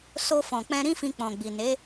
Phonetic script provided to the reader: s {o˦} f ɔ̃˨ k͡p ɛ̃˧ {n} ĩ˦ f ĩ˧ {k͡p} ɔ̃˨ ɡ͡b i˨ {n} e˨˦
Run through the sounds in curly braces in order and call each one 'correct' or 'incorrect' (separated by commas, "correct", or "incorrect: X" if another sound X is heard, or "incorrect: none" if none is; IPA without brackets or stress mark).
incorrect: o˧, incorrect: ɾ, correct, correct